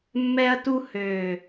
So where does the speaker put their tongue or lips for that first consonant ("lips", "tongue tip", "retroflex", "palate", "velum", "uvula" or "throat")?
lips